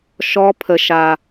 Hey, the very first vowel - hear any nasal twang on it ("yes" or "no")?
no